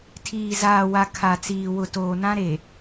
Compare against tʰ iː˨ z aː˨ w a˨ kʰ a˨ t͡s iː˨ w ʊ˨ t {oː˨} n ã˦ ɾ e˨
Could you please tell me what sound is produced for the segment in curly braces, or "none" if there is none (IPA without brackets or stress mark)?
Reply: oː˨